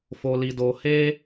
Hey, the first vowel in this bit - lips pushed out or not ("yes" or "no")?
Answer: yes